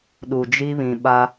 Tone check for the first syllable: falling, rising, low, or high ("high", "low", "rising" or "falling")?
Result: low